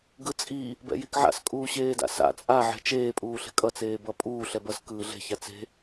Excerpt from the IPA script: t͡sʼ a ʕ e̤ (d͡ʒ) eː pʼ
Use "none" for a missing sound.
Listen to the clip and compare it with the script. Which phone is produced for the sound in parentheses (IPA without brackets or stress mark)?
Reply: t͡ʃ